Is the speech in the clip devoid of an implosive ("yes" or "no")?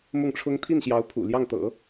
yes